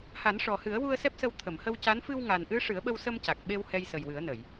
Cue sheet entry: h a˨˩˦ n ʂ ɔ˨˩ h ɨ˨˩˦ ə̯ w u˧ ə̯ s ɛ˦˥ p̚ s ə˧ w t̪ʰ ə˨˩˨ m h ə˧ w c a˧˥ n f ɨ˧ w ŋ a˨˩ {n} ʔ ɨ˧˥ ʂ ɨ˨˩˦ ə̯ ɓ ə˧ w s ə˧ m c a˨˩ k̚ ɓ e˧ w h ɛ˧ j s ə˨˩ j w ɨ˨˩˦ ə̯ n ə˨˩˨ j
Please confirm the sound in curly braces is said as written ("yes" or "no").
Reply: yes